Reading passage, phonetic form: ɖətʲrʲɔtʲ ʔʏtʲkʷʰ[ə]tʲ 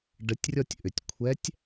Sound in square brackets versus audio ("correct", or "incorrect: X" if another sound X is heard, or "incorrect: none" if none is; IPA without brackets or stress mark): incorrect: ɛ